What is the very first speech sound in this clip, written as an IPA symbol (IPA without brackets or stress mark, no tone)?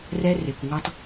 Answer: r